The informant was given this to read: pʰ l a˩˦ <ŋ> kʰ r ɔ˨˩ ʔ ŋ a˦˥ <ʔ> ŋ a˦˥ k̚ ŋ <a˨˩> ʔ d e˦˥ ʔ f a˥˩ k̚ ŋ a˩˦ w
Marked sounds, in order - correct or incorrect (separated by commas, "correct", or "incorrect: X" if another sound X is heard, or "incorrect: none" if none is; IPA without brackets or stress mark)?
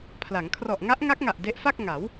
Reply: correct, correct, correct